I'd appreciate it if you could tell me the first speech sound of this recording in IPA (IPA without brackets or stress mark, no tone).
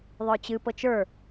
ðˤ